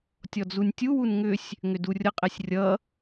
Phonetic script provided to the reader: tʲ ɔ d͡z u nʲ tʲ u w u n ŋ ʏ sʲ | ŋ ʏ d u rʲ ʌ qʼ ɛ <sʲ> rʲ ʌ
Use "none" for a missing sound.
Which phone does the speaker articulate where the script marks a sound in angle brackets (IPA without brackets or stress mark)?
sʲ